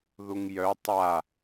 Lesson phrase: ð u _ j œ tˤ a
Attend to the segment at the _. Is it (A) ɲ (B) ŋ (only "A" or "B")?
B